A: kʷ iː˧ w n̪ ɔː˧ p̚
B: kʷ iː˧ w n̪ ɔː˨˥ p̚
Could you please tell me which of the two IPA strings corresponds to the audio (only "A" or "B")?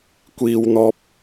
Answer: A